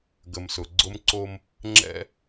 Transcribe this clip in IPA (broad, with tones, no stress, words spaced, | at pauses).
ɡə˨msʊ˨ ɡ͡ǀʊ˦mǀo˦m | ŋ͡ǁɛ̰˦